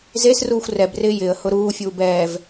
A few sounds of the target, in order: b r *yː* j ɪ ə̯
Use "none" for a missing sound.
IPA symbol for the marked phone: ɪː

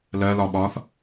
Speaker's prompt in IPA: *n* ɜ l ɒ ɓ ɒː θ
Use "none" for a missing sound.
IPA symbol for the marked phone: l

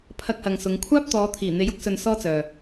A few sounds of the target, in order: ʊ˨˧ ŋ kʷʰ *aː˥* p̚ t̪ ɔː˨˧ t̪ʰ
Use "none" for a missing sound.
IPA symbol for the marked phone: aː˥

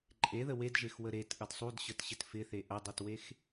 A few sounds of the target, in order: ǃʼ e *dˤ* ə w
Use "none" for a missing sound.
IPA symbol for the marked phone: ð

